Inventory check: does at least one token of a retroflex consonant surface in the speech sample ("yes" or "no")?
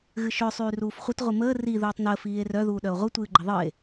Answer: no